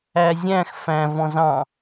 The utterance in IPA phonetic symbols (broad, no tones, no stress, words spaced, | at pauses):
æzʲæ̃x fæ̃v ɔ̃zɑ̃